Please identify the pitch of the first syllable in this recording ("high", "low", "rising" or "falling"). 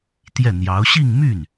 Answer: falling